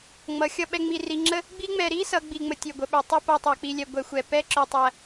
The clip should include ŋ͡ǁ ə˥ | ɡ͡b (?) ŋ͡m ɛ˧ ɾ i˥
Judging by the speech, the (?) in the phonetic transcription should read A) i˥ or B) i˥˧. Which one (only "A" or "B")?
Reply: A